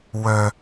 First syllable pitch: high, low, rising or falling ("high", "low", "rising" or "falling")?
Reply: high